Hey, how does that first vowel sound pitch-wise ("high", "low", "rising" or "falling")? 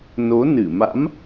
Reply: rising